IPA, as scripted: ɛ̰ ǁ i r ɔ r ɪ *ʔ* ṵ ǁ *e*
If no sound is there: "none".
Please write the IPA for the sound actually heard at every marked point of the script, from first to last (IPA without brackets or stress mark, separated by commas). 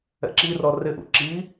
ʔ, i